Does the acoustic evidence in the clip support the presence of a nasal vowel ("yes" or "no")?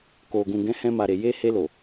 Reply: yes